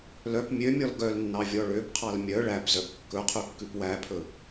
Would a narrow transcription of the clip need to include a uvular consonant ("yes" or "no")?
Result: yes